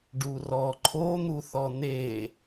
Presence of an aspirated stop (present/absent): present